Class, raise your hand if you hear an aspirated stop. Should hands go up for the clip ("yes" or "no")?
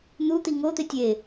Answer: no